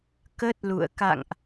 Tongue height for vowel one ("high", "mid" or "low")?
mid